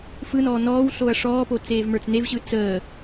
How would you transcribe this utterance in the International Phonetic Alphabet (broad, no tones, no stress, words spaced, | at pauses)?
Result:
fɯnɔː nɔːwɬoɐ̯ ʂɔːpo t͡seːvmə˞t͡snevɕɯ t͡səː